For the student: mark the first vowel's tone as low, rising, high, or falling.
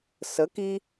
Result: rising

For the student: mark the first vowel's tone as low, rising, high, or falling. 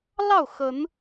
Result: falling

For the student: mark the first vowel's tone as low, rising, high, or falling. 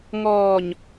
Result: low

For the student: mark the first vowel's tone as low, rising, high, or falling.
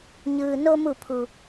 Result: low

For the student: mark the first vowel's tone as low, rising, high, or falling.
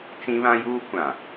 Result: high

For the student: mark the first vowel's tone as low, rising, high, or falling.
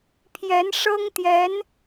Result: rising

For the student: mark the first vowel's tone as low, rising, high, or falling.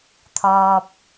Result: low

